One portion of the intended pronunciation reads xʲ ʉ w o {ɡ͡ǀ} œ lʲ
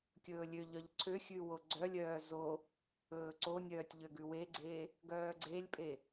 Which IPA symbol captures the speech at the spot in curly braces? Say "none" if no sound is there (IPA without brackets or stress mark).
ɡ͡ǀ